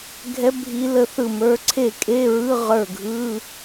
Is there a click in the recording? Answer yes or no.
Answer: yes